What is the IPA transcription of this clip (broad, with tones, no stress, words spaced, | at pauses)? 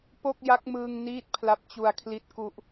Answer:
po˥˩k̚ja˦˥k̚mɯː˧ŋ niː˥˩t̚pʰla˦˥p̚ t͡ɕu˧a̯kʰli˦˥t̚ku˦˥ʔ